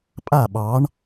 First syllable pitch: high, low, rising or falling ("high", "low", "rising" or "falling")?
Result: falling